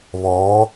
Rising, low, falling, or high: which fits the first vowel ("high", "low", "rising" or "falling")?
rising